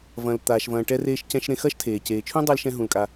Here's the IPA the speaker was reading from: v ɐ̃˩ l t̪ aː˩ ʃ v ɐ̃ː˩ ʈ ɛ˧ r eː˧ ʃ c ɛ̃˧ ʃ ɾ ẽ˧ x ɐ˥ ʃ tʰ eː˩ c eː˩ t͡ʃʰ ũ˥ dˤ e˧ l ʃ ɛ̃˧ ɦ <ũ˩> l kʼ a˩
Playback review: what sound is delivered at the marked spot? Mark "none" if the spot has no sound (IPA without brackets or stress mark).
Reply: ũ˩